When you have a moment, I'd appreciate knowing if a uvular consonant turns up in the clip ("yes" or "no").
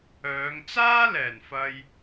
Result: no